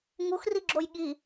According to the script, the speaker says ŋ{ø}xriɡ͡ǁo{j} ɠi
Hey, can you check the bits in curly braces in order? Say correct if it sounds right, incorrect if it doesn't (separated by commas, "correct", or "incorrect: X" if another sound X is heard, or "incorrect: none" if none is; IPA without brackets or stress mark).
incorrect: u, correct